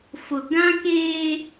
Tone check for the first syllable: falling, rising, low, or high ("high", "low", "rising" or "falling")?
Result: low